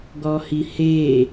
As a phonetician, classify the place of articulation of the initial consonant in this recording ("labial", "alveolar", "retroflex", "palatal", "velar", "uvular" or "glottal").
velar